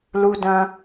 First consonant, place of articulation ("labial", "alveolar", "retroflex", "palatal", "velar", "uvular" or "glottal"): alveolar